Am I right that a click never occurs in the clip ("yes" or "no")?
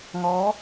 yes